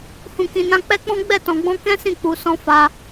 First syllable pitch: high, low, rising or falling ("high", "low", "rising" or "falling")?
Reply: low